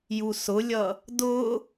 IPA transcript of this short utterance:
j u s ʊ lʲ ʌ | d ʊ

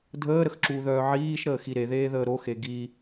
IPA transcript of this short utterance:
dʱ əː ɾ ə x ǁ uː ð œː ʕ iː ʃ ɾ əː x i ɾ e ð eː ð əː ɾ o x e ɡ i

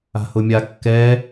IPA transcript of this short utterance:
a̤ h ʊ mʲ a kː ɛ

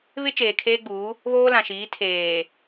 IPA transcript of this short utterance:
β ɪ˦ t͡ʃ eː˨ kʰ eː˦ ɡ͡b uː˨˦ | β oː˦ l ã˨ ʃ iː˨˦ tʰ eː˨

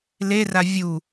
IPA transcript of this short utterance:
l e r a vʲ u

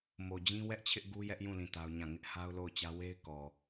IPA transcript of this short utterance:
m o˨ d͡ʑ ĩ˦ w ɛ˦ ʔ t͡ɕʰ ɪ˦ ʔ ɡ u˦ j ɛ˦ ʔ j ũ˦˨ l ĩ˦˨ t a˦ ʊ̯ ɲ ã˦˨ ŋ ɪ˦ ʔ h a˦ ʊ̯ l o˦˨ ʊ̯ t͡ɕ ä˦ w e˦ ɪ̯ k ɔ˨

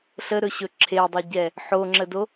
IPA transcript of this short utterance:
ɬ ə ɾ ɵ ɕ ɵ ǁʰ e dˤ ɵ ɟ ɛ | ħ o ŋ͡ǁ ə d o

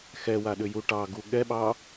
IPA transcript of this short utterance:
x ɛ w a ɗ ʏ j u ʈ ɑ ɡ u ɠ ɛ ɓ ɑ

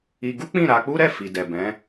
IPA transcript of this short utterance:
i˧ ɡ u˦ k͡p ĩ˦˨ ɾ a˧ k͡p u˦ ɾ ɛ˦˨ f i˨ d ɛ˨ b ɛ̃˨˦

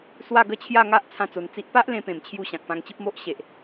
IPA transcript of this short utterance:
s w a˥˧ ɡ ə˥˧ t͡ɕʰ j a˥˧ ŋ a˦ ʔ t͡sʰ ã˥˧ t͡s o˧ n t͡s i˦ ʔ p a˦ ʔ l ẽ˧ p ẽ˨˩ m t͡ɕʰ j u˧ ɕ ã˨ k̚ p ã˧ ŋ t͡ɕ i˦ p̚ m o˦ ʔ ɕ e˨ ʔ

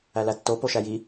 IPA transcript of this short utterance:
æ l æ tː o p o ʃ æ j i

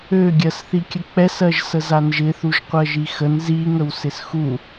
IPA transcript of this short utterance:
ø ɡʲ ɜ s θ i kʲ ə k͡p ɛ s ɜ ʒ s ə z a n ʒ ɪ θ u ʒ qʷ ɜ ʒ i x ə n z i ŋ ə w s ɪ s x u

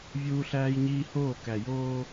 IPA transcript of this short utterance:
vʲ uː˦ ɬ æː˦ j ɲ iː˦ h oː˦˨ k æ˨ j oː˦

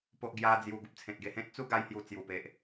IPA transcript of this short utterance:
p o˦ ʔ ɡ j a˦ d͡z j u˧ ɡ u˨ p̚ t͡sʰ ẽ˨ t̚ ɡ e˧ h ẽ˦ t̚ t͡s u˥˧ ɡ a˧ j h j u˨˩ t͡s j u˨˩ p e˨ ʔ

